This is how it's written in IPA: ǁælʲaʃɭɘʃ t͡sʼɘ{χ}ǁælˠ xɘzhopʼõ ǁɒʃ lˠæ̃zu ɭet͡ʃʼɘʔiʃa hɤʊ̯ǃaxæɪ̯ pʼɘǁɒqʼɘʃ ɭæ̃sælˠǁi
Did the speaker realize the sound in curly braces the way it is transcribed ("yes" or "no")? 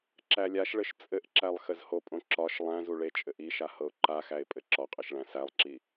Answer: no